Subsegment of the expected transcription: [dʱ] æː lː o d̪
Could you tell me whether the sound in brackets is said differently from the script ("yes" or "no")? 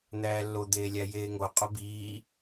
yes